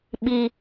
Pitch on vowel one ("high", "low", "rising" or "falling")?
low